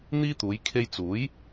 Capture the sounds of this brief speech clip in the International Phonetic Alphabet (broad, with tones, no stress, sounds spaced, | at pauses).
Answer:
n̪ iː˥ t̪ uː˨˧ j kʰ e˧ j t͡s uː˨˥ j